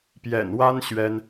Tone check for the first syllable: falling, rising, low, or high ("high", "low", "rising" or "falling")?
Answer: low